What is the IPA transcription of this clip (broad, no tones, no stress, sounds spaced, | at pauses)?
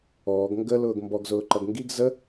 ɔː ɡ ŋ ɡ ə l ʊː ɡ m b ɔ ɡ z ʊː ǃ ʌ ɡ ŋ ɡ i ɡ z ə